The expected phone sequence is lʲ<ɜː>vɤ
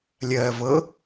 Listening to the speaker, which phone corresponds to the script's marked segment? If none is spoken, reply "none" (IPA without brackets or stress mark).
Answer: ɜː